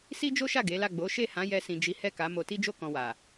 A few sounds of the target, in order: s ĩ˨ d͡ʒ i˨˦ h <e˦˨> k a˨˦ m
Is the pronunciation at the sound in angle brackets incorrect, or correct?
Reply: incorrect